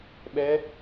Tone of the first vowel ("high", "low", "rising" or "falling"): rising